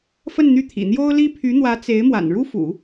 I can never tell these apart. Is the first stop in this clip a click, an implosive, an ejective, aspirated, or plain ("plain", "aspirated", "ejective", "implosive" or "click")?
aspirated